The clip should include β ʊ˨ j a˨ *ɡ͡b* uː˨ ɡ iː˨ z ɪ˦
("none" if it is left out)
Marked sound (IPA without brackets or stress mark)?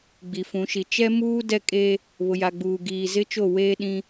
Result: ɡ͡b